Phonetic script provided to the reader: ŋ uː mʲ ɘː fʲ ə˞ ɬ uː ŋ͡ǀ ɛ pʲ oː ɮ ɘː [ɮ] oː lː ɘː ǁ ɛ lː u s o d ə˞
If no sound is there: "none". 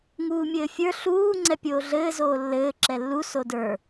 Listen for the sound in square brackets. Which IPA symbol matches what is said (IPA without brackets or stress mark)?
z